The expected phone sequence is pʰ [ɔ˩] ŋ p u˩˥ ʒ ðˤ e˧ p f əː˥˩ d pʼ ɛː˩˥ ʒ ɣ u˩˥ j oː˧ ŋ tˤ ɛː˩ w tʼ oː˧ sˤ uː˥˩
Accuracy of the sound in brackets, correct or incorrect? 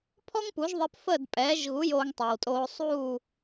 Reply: incorrect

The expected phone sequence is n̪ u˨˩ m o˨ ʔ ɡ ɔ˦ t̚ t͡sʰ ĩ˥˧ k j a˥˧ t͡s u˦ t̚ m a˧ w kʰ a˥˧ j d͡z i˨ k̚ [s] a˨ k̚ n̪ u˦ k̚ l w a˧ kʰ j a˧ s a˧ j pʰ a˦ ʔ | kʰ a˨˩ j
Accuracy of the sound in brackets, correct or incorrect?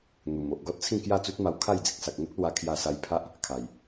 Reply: correct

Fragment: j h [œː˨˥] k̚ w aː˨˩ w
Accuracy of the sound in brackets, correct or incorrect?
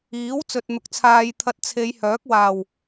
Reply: correct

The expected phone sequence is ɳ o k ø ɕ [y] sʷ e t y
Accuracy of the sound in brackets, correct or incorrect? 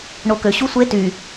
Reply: incorrect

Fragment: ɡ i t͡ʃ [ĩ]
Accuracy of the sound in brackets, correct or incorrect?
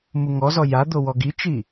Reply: incorrect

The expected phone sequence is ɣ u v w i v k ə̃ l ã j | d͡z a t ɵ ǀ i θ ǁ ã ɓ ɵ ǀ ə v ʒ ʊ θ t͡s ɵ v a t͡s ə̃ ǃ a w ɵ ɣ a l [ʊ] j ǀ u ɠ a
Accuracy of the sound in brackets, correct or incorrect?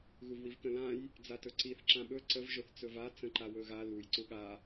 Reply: incorrect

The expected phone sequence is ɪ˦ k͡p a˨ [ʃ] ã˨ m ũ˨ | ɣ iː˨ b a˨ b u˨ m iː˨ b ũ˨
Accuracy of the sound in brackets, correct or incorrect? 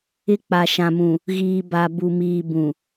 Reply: correct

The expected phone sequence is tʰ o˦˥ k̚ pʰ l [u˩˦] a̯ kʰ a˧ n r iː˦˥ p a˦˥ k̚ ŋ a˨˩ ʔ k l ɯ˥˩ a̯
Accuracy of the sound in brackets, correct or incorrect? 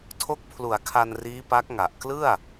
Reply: correct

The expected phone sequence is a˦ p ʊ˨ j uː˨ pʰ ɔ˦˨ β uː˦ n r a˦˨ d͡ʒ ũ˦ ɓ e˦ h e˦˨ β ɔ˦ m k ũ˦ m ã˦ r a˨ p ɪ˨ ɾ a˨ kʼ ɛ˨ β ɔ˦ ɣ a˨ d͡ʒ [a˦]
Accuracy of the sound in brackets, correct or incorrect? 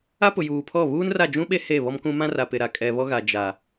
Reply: incorrect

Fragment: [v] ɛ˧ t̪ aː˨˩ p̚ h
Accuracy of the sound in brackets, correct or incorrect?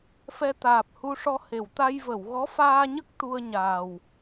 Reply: incorrect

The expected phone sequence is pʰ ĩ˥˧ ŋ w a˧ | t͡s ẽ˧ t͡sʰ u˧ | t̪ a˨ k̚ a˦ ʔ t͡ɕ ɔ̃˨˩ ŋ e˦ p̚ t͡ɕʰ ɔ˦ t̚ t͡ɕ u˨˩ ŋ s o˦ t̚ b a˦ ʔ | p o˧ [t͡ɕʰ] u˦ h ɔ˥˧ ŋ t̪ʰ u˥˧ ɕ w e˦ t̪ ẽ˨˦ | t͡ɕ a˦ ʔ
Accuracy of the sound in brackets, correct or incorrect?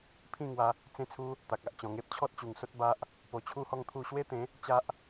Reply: correct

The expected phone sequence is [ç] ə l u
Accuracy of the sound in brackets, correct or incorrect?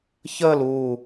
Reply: correct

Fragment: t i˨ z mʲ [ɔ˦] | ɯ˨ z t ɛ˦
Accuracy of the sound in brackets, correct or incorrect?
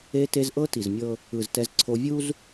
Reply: incorrect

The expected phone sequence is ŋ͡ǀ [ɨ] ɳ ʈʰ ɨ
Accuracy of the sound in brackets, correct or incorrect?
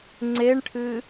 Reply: incorrect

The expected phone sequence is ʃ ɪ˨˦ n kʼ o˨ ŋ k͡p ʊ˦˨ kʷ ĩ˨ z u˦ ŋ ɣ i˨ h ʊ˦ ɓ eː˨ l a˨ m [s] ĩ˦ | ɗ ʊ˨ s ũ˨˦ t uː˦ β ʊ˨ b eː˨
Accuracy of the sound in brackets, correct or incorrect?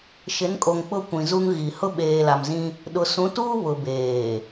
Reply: incorrect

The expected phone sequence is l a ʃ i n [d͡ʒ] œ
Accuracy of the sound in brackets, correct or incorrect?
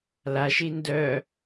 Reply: incorrect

